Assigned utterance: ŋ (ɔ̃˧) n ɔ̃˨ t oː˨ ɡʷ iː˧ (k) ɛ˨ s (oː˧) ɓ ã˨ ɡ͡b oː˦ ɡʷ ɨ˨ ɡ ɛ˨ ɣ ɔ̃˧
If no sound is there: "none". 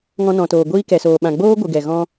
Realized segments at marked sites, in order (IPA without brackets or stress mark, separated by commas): ɔ̃˧, k, oː˨